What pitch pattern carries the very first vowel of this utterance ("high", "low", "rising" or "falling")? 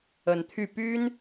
rising